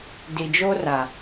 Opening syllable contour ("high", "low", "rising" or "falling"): low